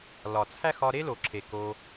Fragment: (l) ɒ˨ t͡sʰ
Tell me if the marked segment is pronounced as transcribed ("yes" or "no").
yes